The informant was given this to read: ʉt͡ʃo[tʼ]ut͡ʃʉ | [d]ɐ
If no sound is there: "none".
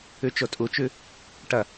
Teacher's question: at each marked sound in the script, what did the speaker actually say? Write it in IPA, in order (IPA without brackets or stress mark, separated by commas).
tʼ, ʈ